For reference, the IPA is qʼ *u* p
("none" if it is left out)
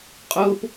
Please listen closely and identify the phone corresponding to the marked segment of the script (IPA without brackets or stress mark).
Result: o